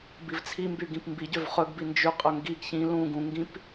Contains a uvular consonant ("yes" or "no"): yes